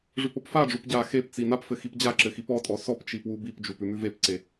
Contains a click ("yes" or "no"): yes